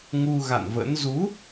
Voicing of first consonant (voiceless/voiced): voiced